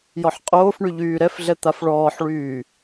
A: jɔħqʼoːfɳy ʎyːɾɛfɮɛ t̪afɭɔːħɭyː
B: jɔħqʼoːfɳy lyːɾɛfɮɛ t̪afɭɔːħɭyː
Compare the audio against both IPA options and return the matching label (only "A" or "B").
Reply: A